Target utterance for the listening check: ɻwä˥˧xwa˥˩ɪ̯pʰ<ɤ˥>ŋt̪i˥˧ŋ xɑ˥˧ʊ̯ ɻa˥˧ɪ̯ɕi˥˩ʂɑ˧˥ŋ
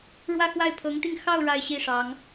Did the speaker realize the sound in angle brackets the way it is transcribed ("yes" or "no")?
no